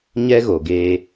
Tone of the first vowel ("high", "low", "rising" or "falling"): high